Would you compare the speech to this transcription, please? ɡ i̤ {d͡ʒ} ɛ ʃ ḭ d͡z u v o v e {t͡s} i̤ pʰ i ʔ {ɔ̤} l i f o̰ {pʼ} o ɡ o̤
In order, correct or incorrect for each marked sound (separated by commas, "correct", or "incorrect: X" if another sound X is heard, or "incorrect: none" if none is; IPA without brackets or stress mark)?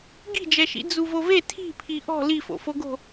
correct, incorrect: tʰ, correct, incorrect: f